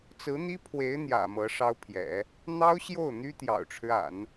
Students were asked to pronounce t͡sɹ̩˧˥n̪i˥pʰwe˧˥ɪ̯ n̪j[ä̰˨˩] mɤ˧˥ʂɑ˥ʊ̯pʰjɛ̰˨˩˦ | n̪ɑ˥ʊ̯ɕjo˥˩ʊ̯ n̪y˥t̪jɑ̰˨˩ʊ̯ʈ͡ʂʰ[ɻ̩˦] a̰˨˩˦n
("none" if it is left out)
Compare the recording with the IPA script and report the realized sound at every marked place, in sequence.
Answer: ä̰˨˩, ɻ̩˦

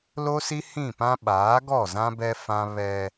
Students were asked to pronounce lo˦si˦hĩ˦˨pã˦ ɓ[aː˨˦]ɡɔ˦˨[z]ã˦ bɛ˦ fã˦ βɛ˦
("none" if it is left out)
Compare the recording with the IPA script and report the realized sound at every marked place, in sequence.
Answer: aː˨˦, z

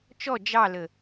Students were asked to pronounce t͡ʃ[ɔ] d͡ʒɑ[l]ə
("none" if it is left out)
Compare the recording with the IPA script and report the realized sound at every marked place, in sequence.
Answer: ɔ, l

